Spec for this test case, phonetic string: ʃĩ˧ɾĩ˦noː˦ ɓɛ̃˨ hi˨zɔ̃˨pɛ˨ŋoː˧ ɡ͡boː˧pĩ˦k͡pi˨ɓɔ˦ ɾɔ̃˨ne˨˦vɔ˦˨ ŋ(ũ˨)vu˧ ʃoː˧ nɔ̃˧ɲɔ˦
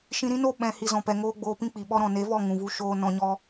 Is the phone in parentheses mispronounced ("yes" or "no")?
no